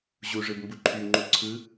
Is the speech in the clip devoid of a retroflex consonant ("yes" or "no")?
no